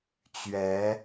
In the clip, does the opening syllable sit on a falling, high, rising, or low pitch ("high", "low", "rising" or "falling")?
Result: rising